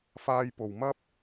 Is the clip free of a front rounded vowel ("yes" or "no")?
yes